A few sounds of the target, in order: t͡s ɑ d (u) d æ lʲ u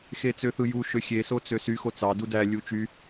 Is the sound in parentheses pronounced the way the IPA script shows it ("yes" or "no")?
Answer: yes